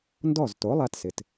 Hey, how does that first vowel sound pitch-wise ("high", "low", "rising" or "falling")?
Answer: falling